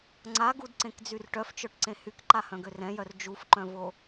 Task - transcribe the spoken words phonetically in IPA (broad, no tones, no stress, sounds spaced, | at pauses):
ŋ͡ǀ a ɡ u d ǀ ẽ k d͡z y r ʈ œ f t͡ʃ œ ʈ ǀ ẽ h y k ǃ a h œ̃ ɡ ø r ɛ̃ j œ r d͡ʒ u f ǃ œ̃ v o